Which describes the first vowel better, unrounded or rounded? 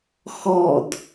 rounded